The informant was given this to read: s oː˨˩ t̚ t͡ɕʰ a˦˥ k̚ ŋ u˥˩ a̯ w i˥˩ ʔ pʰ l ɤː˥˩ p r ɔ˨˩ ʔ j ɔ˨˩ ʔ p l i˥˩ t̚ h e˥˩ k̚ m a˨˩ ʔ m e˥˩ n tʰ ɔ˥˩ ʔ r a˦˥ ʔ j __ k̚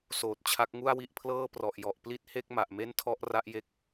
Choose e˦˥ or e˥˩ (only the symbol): e˦˥